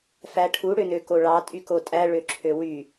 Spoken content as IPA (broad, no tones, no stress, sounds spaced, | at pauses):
f æ ʈʰ u ɽ ø n ø k o ɭ ɑ tʼ y k o tʼ æ ɭ ø ǁʰ ø w y